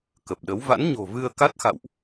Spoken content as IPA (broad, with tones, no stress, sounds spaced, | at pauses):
k ə˨˩ p̚ ɗ ə˨˦ w v a̰˧˥ n ɲ o̤˨˩ v ɨ˧ ə̯ k a˦˥ t̚ x a̰˧˨ w ʔ